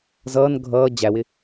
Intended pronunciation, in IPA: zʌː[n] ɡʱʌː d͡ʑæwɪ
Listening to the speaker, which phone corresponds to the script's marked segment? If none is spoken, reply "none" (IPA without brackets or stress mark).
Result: n